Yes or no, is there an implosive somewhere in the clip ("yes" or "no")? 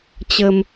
no